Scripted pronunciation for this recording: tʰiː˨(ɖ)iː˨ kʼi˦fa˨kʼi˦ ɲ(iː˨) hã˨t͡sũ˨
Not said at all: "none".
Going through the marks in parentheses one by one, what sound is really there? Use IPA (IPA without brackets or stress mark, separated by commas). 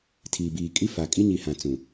b, i˨